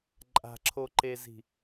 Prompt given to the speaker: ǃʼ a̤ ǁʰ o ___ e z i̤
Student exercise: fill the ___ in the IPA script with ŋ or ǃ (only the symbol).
ǃ